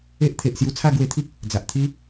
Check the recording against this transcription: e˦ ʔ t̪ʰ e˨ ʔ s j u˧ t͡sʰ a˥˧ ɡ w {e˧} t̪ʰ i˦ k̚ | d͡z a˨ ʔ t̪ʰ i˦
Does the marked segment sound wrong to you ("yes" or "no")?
no